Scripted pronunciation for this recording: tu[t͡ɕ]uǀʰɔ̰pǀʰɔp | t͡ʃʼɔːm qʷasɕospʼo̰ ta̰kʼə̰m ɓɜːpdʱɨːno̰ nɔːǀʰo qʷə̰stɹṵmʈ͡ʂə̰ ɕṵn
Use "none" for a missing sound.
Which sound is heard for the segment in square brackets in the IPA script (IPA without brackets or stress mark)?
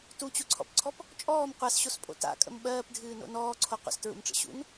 t͡ɕ